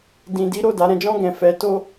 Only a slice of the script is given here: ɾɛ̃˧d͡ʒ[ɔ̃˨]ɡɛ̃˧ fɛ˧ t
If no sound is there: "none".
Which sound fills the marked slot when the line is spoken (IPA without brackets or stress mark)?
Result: ɔ̃˦